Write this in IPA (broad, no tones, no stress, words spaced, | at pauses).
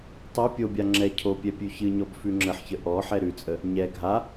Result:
tˤɛ pʲobʲa ŋ͡ǁɛ cʰopʲɛ pʲʉçɨɲɔb fʉŋ͡ǁəħçə ʔɔ ħɛɾʉt͡sʼə | ɲɛ ɡʱa